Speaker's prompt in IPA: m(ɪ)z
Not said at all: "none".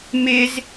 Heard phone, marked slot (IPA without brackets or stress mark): ɪ